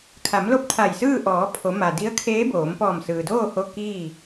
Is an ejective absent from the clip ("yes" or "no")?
yes